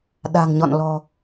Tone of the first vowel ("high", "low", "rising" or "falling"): low